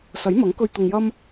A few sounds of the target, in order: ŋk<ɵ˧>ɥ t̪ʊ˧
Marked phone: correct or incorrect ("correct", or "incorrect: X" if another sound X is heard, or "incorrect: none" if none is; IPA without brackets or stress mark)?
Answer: correct